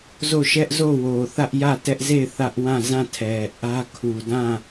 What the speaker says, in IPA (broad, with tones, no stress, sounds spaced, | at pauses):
z o˦˨ ʃ ɛ˦ ʔ z o˦˨ w o˨ θ ä˦ ʔ j ä˦˨ t ɛ˦ ʔ z e˦˨ ɪ̯ θ ä˦ ʔ w ã˦˨ z ã˦˨ tʰ ɛ˨ ʔ ä˦ kʰ u˨ d ã˦˨